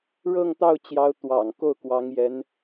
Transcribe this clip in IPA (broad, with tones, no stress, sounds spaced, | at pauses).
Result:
ɻ ɤ˥˧ ŋ t̪ ɑ˥˩ ʊ̯ t͡ɕ j ɑ˧˥ ʊ̯ t̪ w ɑ̰˨˩ ŋ k o˥˩ ʊ̯ k w ɑ˧˥ ŋ j ɛ˧˥ n